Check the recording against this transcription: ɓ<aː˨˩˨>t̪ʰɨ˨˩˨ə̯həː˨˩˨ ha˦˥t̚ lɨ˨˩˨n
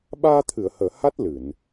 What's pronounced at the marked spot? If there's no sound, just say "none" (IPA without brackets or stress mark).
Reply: aː˧